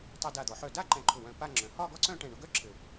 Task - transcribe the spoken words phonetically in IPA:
tˤœ˧da˧˩d̪ɔ˩˧ ħœ˧˩da˥˧ǃɛ̃˧˩ ǃʰʊ˧˩wœ̃˧˩ pa˥˧ŋ͡ǁœ̃˩˧ hɒ˥˧ɡɔ˥ǀœ̃˥˧ ʈɛ̃˧˩ɳʊ˧ɡœ˥ ǁʰɘ˧˩

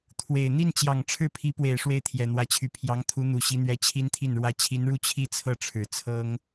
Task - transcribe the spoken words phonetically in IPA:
t̪ʰwe˨˩ɪ̯ n̪i˥˩nt͡ɕjɑ˨˩ŋ ʈ͡ʂʰɻ̩˥˩pʰi˧˥pwe˨˩ɪ̯ ʂwe˥˩ɪ̯t̪ʰjɛ˨˩n̪wä˧˥t͡ɕʰy˧˥ pʰjɑ˧˥ŋt̪ʰu˧˥ n̪u˨˩ɕi˧˥n̪ɥɛ˧˥ t͡ɕʰi˥nt̪ʰi˥˩nɻwä˥ t͡ɕʰi˧˥nɻu˥˧ t͡ɕʰi˥˧t͡sʰɤ˥˩ ʈ͡ʂʰɻ̩˨˩t͡sʰɤ˥ŋ

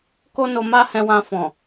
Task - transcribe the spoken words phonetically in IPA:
ko˦no˧ ma˦hɛ̃˧wã˧ fɔ̃˨

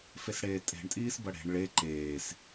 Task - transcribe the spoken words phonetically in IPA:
fesɽeːtʼe̤ɳ tʼiːsbʌɽe̤ɳ ɭe ǃeːs

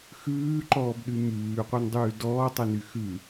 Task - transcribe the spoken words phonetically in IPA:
xʉːǃɔːbɗy mʉːqʷɛndˤʉː dɔːtˤɛny xʉ

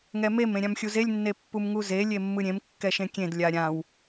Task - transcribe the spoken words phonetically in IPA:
ŋɛmem ẽɾʲãmxʲuzelʲ nːepːumŋuze lʲemːɯɾʲẽm kːɛʃẽkʲẽd lʲaɾʲãw

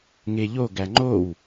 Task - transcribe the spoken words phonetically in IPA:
ŋeʎoɡæ ŋ͡ǃow

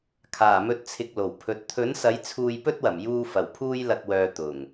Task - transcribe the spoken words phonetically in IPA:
kʰaː˨˩mɵ˨˥t̚t͡sʰɪ˨k̚ lo˨˩wpʰɵ˨˥t̚ t̪ʰɵ˨˥nsɐ˨˥j t͡sʰuː˧jpɵ˥t̚wɐ˨˩m juː˧fɐ˨˩w pʰuː˥jlɐ˧k̚wœː˧ t̪ʊ˨˩ŋ

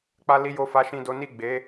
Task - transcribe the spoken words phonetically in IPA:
k͡pa˦li˦jo˦ fa˦ʃĩ˦do˦ ni˦˨ɡ͡be˨˦

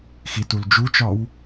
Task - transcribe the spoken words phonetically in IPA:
xitul d͡ʒut͡ʃɒw

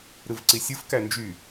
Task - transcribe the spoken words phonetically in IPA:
ɾɯvǀisʲɯfkæ nd͡ʒy

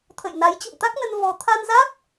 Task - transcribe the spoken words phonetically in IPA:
t̪ʰə̰˧˨jna˨˦j t͡ɕḭ˧˨ŋt̪a˦˥k̚nə˧n vɔ˧ t̪ʰa˧nza˦˥k̚

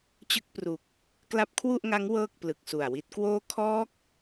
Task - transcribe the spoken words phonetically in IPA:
t͡ɕɯ˥˩k̚pru˨˩k̚ | kla˦˥p̚kʰwu˥˩ʔŋa˦˥ŋ wɤː˥˩k̚plɯ˨˩k̚su˨˩a̯wi˦˥t̚ kwoː˦˥kʰɔː˦˥k̚

